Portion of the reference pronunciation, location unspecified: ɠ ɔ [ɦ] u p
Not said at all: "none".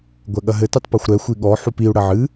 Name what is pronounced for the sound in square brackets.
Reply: ħ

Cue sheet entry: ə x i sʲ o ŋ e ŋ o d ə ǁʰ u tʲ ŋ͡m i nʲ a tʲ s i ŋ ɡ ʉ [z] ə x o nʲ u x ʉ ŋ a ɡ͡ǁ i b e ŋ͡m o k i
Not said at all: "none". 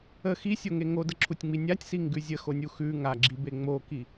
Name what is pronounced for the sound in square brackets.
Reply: zʲ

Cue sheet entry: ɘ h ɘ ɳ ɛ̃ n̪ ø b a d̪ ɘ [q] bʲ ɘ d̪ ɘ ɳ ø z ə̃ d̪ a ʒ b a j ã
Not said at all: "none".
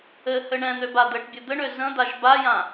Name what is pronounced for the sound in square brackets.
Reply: ʈ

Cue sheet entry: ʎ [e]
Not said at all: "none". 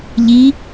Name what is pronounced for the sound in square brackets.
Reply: i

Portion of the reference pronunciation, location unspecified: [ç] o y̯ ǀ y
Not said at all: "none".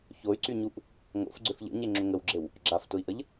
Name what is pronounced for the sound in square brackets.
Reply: ç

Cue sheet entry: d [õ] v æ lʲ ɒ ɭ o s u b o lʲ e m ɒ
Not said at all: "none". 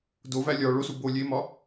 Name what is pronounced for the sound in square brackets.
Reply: o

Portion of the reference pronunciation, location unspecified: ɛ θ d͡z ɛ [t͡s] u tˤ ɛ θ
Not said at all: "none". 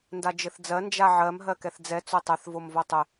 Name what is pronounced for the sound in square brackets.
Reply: t͡s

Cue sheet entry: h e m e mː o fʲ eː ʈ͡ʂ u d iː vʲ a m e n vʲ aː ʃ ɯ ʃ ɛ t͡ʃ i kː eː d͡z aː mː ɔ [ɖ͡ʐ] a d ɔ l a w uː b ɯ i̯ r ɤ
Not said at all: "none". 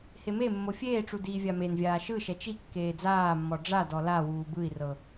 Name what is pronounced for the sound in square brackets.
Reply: ɖ͡ʐ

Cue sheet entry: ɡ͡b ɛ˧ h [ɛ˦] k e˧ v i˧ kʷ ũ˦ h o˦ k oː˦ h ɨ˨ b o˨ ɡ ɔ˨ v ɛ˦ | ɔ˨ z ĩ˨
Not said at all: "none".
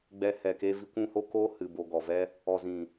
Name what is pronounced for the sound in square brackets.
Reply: ɛ˨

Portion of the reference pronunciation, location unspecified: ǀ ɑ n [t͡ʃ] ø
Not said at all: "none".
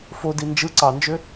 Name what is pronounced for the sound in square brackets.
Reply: d͡ʒ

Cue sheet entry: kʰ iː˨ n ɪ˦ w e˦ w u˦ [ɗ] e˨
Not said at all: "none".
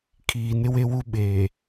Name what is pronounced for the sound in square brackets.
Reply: ɓ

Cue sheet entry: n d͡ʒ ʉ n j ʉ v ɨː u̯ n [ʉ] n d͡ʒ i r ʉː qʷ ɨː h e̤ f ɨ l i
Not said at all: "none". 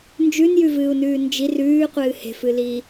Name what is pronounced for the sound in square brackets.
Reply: ʉː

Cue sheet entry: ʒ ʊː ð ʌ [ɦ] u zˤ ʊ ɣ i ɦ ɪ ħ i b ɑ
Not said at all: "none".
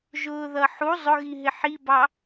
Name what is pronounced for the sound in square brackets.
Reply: ħ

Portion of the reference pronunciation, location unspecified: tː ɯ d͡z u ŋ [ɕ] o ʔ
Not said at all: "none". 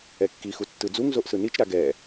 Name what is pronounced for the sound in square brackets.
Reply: z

